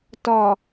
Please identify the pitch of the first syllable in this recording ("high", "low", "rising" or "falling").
low